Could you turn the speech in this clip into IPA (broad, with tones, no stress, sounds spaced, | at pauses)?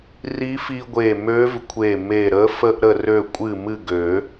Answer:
r i˧˥ f i˧ ɡʷ e˧˩ m ø˧˥ v kʷʰ e˧˩ m e˧˩ ɾ ə˧˥ f ə˧ ʔ ɾ ə˧˩ r ø˧˩ kʷʼ ɨ˧˩ m ɨ˧˩ ɡ ø˨˩˦